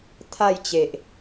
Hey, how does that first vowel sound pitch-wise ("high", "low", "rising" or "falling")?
falling